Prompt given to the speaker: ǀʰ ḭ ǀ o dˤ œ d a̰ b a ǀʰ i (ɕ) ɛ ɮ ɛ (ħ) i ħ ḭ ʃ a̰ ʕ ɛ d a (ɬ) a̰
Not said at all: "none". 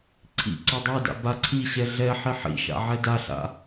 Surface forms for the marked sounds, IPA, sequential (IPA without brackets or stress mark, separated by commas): ɕ, ħ, ɬ